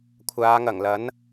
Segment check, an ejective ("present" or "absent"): absent